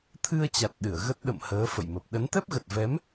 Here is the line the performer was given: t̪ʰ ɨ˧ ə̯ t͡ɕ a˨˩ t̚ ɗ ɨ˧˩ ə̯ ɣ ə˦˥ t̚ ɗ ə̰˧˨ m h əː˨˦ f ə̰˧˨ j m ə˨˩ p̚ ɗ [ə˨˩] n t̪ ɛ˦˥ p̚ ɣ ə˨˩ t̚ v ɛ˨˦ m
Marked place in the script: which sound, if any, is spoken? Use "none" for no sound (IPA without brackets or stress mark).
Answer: ə˨˦